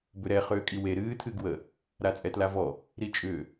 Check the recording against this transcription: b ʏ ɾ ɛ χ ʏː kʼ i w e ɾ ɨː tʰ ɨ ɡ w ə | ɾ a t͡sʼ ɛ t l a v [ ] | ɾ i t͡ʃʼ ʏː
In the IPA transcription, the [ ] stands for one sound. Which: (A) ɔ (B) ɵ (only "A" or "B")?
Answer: A